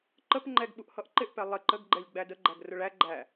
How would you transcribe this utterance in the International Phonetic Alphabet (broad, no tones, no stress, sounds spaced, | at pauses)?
ǃ ə p ŋ͡ǃ ɛ ɡ ɓ u ʔ h ʌ ʔ ǃ ɪ ʔ p ɛ lˠ ɪ ǃ ə ɡ ɡ͡ǃ ɛ lʲ ɡ͡b æ d ə ɡ͡ǃ æ ɡ r ʊ ɭ æ ɡ͡ǃ æ